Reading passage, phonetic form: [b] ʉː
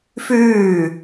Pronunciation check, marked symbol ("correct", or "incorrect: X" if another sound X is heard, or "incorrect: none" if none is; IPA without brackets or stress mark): incorrect: f